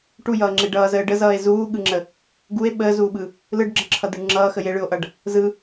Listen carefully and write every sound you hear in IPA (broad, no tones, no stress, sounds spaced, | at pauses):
ʈ u j ʌː ŋ͡ǁ e ɖ ʌː z əː ɖ ə z ʌː e̯ z uː ɠ ɯ ŋ͡ǁ ə | ɡ u e̯ ɓ əː z uː ɓ ɯ | l ɯ ɖ ɡ͡ǁ ə ǁʰ ʌ d ɯ ɳ ŋ͡ǁ ʌː x ə j e ɭ ɯ o̯ ʔ ʌ ɖ | z ɯ